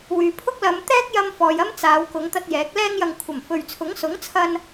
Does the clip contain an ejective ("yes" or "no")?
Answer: no